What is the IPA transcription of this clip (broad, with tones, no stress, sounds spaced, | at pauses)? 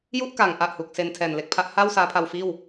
j u˥˩ ʔ k aː˩˦ ŋ ʔ a˨˩ ʔ h u˨˩ k̚ s e˧ n tʰ ɛː˨˩ n l e˨˩ k̚ pʰ a˦˥ ʔ h a˥˩ w s aː˦˥ pʰ a˧ w f iː˥˩ w